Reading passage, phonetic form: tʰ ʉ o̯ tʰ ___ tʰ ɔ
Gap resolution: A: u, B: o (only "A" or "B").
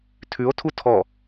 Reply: A